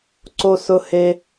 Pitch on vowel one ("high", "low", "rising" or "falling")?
high